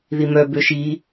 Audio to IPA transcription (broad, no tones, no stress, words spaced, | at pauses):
ðimœbø ʃi